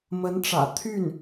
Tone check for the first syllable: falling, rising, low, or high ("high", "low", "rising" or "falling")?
rising